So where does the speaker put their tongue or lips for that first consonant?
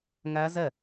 velum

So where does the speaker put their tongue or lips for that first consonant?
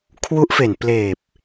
velum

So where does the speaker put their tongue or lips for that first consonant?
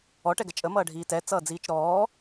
retroflex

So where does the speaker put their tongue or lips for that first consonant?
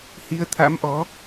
throat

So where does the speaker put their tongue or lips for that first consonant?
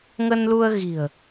velum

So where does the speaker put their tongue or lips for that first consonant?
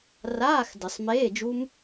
tongue tip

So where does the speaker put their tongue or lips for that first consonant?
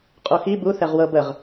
uvula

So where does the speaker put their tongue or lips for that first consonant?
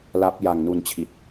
tongue tip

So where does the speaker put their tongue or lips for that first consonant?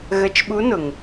velum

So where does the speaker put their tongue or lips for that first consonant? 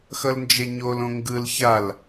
velum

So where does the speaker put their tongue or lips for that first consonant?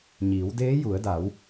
palate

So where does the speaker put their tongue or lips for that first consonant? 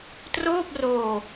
tongue tip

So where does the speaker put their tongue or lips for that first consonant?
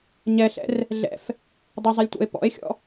palate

